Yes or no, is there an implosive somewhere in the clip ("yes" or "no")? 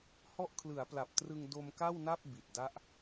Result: no